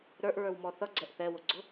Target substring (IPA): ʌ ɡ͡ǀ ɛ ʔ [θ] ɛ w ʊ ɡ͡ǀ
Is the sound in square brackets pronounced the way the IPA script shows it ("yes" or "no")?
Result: yes